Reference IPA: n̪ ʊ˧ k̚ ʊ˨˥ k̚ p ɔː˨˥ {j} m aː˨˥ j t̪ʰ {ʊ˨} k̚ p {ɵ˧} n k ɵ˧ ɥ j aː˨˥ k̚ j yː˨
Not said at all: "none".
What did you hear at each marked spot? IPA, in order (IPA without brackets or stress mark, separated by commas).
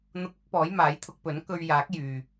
j, ʊ˧, ɵ˨˥